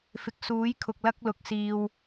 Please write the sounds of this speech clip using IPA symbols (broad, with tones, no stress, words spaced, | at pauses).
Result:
fɪ˨k̚suː˨˥j kʰʊ˨k̚lɐ˧k̚lʊ˨k̚ siː˨w